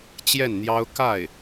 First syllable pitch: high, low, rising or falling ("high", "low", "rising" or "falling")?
falling